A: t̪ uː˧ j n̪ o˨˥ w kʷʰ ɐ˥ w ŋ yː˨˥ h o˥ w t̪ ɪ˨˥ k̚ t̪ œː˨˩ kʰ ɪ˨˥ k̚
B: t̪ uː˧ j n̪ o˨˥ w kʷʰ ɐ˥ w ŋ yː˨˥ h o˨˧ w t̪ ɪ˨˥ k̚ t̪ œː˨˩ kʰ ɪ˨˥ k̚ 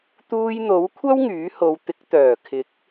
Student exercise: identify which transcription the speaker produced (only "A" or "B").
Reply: B